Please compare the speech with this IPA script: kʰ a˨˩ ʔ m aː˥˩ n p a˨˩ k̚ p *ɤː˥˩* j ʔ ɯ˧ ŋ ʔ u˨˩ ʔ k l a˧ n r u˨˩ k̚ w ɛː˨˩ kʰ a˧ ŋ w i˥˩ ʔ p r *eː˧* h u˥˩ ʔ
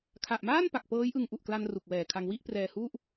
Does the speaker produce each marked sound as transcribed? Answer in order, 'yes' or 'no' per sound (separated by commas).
no, no